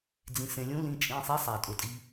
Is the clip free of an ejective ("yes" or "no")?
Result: no